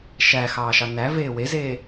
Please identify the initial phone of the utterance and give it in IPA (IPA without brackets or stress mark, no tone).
ʃ